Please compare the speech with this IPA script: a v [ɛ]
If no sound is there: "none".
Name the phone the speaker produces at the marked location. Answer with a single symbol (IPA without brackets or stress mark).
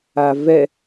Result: ɛ